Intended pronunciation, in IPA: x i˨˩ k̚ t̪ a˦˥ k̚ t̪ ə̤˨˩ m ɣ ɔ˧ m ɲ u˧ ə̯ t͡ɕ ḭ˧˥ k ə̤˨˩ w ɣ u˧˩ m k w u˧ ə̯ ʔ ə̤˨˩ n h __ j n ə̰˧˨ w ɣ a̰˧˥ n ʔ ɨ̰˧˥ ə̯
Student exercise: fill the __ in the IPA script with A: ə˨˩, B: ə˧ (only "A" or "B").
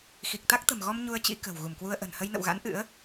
B